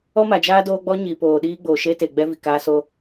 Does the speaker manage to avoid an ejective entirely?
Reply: yes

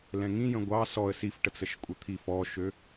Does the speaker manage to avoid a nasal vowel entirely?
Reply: no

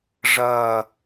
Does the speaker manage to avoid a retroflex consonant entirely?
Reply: no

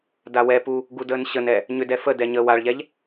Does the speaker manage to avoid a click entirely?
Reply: yes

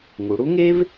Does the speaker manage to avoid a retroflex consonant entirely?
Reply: no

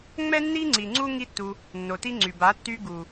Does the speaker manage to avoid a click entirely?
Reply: no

